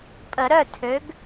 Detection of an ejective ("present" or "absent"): present